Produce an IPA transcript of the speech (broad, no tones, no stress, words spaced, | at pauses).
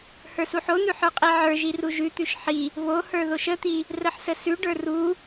hə˞suħon̪ʉ ħə˞qʼiʕə˞ʒi ruʒʉt̪ʉʃ ħi | βohə˞ ðoʃət̪i | rəħsəsʉɖə˞ ru